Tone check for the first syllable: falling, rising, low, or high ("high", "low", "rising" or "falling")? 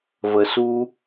low